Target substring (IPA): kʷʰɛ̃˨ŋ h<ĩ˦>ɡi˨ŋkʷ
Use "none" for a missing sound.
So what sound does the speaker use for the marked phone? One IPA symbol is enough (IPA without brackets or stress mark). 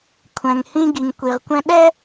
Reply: ĩ˦